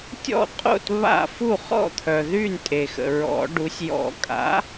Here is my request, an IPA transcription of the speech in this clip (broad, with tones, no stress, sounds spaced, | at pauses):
tʲ ɔ̰˥˩ qʼ o̰˥˩ t β a̰˥˩ f u˥˩ χ ɔ̰˥˩ t̪ʰ œ˩ ð y˥˩ n tʼ e˩ x ə̰˩ ɹ ɔ̰˨˩˦ ɖ u˩˥ sʲ j ɔ̰˨˩˦ kʼ a̰˩˥